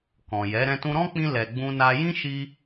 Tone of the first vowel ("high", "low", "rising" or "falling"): low